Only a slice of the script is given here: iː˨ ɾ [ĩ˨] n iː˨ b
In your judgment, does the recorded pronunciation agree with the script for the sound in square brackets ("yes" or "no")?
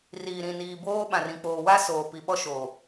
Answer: yes